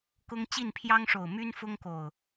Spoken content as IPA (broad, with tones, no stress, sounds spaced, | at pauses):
k ʊ˦ ŋ t͡ɕ i˥˨ n pʰ j ɑ˦ ŋ ʂ o˨˩ ʊ̯ m y˦ n f ʊ˦ ŋ k o˨˩ ʊ̯